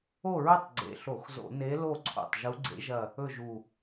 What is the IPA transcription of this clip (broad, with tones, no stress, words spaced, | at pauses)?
o˦˨ɹɵ˦˨tˤ ɡ͡ǀḛ˨˩ɬo˧˩˧xzo̰˧˩˧ ne˧˥ lo˦˨ǀʰo̰˨˩tˤ ʒu˧˥ɡ͡ǀḛ˧˥ʒɐ˦˨ | ɵ˦˨ʒu˨˩